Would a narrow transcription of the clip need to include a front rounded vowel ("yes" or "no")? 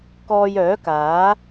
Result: yes